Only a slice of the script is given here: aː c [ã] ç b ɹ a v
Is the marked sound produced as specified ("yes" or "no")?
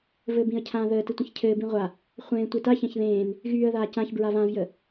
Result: yes